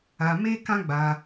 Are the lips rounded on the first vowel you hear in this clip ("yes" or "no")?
no